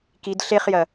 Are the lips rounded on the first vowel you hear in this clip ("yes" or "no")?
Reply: no